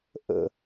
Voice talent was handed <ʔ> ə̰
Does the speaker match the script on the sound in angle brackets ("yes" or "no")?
yes